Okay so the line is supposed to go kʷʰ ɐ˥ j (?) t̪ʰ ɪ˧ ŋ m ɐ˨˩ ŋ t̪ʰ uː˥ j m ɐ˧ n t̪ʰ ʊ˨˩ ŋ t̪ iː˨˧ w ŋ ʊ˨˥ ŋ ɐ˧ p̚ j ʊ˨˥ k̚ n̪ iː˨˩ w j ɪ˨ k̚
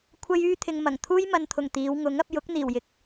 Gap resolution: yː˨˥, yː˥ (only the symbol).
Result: yː˥